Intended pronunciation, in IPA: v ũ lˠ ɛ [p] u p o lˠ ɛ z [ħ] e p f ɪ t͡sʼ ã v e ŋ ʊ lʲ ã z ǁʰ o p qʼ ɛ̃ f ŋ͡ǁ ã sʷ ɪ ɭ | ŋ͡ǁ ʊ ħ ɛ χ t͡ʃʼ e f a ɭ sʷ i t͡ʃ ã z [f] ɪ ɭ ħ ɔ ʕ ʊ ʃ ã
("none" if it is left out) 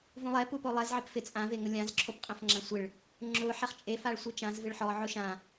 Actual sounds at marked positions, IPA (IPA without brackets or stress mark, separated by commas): p, ʕ, v